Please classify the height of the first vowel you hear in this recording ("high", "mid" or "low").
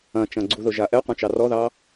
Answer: low